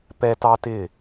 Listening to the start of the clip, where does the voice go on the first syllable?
high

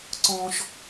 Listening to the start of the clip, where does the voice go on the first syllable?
high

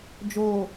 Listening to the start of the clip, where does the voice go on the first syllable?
low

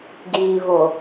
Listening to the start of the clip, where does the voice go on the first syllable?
low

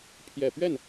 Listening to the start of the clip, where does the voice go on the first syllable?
low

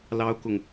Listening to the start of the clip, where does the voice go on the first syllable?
high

